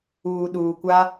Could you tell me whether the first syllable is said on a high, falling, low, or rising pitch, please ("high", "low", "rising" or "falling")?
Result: low